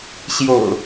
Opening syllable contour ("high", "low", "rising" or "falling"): low